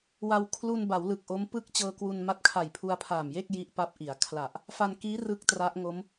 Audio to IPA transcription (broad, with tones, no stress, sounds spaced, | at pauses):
w a˧ w kʰ l u˧ n b a˩˦ w l ɯ˨˩ k̚ ʔ o˦˥ m p ɯ˥˩ k̚ t͡ɕ ɤː˧ k w u˧ n m a˦˥ t̚ kʰ a˨˩ j pʰ u˧ a̯ pʰ aː˨˩ m j e˥˩ k̚ j i˦˥ ʔ p a˦˥ p̚ ʔ i˩˦ a̯ kʰ l a˨˩ ʔ | f a˧ n k iː˦˥ r ɯ˥˩ k̚ t r a˦˥ ʔ ŋ o˦˥ m